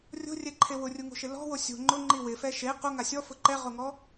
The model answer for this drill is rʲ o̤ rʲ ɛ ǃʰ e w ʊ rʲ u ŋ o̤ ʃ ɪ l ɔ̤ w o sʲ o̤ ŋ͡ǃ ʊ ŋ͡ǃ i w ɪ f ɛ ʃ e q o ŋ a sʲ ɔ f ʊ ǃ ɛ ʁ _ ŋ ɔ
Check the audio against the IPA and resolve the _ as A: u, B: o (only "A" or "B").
B